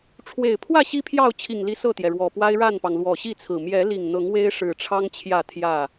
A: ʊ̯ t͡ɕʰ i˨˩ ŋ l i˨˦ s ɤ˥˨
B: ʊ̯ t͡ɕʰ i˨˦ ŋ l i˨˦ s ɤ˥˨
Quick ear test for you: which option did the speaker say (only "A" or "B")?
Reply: A